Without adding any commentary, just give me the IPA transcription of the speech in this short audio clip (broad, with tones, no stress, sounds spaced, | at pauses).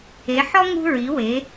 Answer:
e˩˧ ħ ɔ˦ ŋ ṳ˦ ɹ i˩˧ w e˩˧